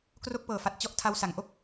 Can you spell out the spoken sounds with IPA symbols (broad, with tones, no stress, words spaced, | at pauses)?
kro˥˩k̚pɤː˨˩fa˨˩t̚ t͡ɕɔ˥˩ʔtʰa˦˥w sa˩˦ŋʔo˥˩k̚